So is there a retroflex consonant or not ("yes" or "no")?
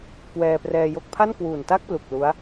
no